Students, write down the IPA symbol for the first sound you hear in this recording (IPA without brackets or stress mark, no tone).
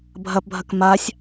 bʱ